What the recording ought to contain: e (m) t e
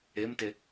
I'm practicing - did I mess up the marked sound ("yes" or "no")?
no